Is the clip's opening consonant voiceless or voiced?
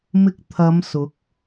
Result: voiced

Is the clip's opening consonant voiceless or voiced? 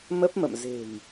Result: voiced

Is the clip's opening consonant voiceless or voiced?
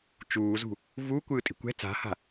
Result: voiceless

